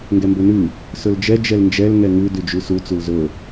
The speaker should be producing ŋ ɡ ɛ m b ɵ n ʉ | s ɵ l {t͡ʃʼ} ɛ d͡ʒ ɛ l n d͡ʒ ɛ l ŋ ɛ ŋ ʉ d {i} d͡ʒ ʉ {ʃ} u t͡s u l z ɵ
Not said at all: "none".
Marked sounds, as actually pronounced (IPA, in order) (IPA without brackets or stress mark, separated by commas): d͡ʒ, y, s